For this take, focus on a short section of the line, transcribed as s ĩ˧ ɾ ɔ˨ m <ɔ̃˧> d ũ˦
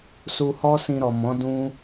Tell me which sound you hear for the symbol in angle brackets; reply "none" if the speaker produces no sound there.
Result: ɔ̃˨˦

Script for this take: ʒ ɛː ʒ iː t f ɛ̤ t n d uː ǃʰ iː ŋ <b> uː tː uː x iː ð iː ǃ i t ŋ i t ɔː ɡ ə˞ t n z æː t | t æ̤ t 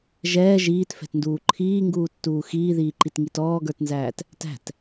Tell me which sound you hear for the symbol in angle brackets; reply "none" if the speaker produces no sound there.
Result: ɡ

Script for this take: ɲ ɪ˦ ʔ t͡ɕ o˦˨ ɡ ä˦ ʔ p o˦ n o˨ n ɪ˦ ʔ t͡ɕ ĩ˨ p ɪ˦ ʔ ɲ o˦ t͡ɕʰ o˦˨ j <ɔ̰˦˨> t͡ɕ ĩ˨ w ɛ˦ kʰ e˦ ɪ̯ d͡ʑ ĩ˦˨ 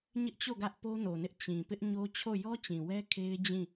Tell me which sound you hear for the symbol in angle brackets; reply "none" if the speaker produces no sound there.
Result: ɔ˦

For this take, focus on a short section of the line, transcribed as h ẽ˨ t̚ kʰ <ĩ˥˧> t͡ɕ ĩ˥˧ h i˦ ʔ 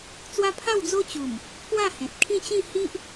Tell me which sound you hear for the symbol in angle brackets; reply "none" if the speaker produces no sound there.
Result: ĩ˥˧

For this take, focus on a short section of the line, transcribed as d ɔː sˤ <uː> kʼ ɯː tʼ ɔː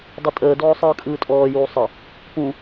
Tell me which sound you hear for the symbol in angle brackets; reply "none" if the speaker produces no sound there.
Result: ɯː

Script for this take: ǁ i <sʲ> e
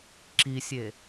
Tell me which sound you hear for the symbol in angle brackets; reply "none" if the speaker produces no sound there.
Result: sʲ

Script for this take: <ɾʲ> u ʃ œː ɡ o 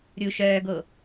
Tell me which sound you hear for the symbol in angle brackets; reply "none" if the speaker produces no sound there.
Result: ɾʲ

